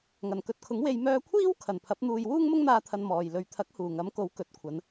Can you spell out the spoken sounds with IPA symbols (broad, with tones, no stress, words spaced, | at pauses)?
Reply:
ŋɐ˨˩nkɵ˨t̚kʰʊ˨˥ŋwe˧j mœː˧kʷʰiː˥w kʰɐ˨˩npʰɐ˨˥p̚ n̪uː˧j wuː˥ŋmʊ˥ŋn̪aː˧ t̪ʰɐ˧nmɔː˨j lɵ˨ɥt̪ʰɐ˨˥k̚ huː˨˩ŋɐ˨˥mko˨˥w kɵ˨t̚kʷʰɐ˨˧n